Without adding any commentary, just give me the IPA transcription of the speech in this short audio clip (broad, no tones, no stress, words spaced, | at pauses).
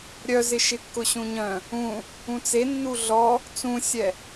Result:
ɾʲœzɪ ʃɪkːʊɕũɲœ̃ | ũ | ũt͡se nːuɮɔ | t͡sũsʲɛ